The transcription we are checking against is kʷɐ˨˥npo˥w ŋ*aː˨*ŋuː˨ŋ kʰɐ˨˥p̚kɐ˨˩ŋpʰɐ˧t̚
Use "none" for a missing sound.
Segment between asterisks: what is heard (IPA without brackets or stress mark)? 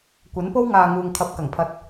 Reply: aː˨